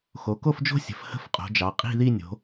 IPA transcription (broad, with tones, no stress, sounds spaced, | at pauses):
x o˩˧ k o˥˧ f d͡ʒ o̤˥˧ sʲ ə̤˩˧ f h ə̤˥˧ f qʼ o̤˩˧ d͡ʒ ɑ˩˧ qʼ i̤˥˧ ð i˥˧ nʲ o̤˩˧